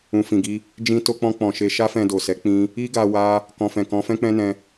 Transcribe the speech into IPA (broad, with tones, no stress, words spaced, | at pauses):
ũ˨fĩ˨ɡi˧ | d͡ʒĩ˧to˧k͡pɔ̃˧ k͡pɔ̃˨ʃe˧ ʃa˦fɛ̃˧do˨sɛ˨˦ k͡pĩ˧ | i˦ɡa˧ wa˧ | kɔ̃˨fɛ̃˨ kɔ̃˨˦fɛ̃˦k͡pɛ̃˦nɛ̃˧